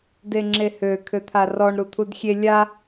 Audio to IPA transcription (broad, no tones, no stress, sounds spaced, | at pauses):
d e ŋ͡ǁ e h ø kʰ ø t̪ʰ a r ɔ ɳ ɾ u t̪ʰ u d xʲ e lʲ a